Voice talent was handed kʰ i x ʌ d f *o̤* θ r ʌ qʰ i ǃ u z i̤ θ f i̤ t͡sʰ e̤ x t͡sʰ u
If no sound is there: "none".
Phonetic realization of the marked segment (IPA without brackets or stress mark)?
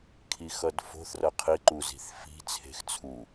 o̤